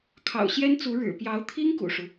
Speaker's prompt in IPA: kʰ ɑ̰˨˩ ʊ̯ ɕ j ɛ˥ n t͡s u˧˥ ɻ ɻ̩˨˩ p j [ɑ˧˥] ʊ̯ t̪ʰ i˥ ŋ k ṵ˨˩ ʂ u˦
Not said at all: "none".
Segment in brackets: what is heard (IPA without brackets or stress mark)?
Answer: ɑ˧˥